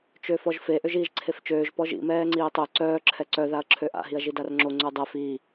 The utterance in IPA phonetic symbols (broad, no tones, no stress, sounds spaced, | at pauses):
t͡ʃ ø f ɔ ʒ f e ʔ ø ʒ iː ʒ ǀʰ e f t͡ʃ øː ʒ p ɔ ʒ ḭ m ɛː ŋ͡ǀ iː tˤ ø ǀ œː ǁʰ ɛ ǀ œ ð a ɐ̯ ǁʰ ø ʔ a̰ ɦ i ɐ̯ ʒ i d a r ŋ͡ǁ o ŋ͡ǀ ø dˤ ɛ f i